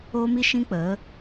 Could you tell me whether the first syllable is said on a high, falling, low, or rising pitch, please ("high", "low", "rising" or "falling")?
high